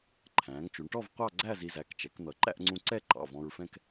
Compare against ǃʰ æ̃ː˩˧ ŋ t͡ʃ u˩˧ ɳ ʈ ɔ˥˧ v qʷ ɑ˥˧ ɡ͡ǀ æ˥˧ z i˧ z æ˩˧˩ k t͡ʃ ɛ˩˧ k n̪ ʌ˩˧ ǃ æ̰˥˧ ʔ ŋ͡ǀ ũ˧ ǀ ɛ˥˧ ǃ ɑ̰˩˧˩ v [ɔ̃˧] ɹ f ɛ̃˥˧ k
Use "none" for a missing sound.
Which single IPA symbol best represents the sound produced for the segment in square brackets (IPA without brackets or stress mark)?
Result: ɔ̃˧